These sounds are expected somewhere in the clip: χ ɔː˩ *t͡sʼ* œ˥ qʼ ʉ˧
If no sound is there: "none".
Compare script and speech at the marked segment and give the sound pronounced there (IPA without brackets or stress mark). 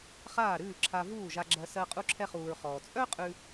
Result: t͡sʼ